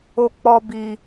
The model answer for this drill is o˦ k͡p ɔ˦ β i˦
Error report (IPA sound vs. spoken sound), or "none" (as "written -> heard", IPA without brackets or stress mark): β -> b